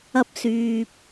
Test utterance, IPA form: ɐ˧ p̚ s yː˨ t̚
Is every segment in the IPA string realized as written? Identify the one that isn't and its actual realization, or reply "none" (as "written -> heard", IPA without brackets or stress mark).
t̚ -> p̚